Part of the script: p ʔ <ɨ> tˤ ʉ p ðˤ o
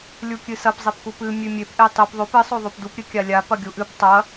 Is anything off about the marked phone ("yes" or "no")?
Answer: yes